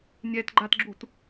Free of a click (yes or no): no